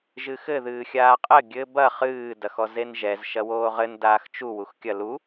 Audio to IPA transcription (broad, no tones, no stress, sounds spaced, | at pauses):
ʒ ɨ x ɘ ð ɨː xʲ aː qʼ ɘ ɡʲ ɘ b ɐ χ ɨː d ɐ x ɔ z e n ʒ ɛ z ʃ ɐ w oː ʁ ɘ n d aː x t͡ʃ u w u x kʲ ɐ l u